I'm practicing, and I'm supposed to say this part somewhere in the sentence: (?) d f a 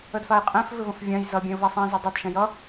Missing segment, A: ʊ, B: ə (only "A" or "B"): B